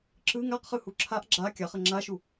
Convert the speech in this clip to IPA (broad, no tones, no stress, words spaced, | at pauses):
ǁɯ ŋaqχɯ huǁʰaʔ ɡ͡ǁa kʲaχə ŋ͡ǁaʃu